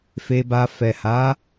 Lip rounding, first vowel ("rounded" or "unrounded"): unrounded